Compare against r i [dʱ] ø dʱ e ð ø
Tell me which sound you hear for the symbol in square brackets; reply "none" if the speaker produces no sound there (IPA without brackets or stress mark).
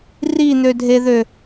n̪